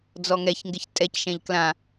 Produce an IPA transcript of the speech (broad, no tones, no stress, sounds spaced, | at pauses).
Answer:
d͡z ɔ ŋ ɛ ç ŋ ɡ ɪ ç tʼ ɛ c ʃ ɛ̃ ʎ k l ã